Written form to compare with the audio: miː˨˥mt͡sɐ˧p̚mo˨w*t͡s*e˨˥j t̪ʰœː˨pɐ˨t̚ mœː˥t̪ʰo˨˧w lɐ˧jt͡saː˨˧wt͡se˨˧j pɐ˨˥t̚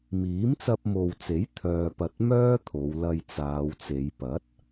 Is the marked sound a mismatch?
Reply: no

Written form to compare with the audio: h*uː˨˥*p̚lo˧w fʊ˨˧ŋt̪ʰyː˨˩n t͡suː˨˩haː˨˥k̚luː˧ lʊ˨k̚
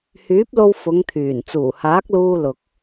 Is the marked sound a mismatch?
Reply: yes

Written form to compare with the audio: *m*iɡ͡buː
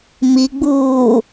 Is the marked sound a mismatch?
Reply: no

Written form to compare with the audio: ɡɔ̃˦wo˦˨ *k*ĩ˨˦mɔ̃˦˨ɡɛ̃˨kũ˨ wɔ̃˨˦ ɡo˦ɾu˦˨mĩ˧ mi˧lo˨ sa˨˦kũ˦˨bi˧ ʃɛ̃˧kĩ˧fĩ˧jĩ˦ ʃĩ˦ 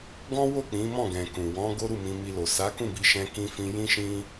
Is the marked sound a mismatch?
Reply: yes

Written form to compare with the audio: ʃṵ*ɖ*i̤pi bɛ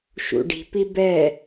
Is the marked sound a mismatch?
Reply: no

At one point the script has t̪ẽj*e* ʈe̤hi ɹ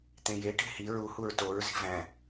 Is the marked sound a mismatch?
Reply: no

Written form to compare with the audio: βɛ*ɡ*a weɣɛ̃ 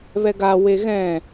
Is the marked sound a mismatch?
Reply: no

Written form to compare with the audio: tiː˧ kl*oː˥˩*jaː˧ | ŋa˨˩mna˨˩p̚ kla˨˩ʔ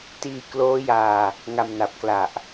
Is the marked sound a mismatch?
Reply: yes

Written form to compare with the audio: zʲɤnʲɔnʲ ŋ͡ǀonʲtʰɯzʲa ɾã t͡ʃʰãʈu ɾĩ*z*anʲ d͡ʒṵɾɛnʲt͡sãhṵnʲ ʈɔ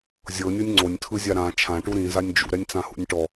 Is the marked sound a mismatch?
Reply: no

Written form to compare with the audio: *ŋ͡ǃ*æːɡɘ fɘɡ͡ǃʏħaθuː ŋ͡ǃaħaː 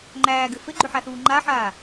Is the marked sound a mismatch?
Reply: no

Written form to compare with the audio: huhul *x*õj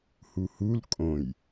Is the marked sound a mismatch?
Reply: yes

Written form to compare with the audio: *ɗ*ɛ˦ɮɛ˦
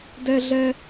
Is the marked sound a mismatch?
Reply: yes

